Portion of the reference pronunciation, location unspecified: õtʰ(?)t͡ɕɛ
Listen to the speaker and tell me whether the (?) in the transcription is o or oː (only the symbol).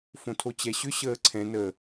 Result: o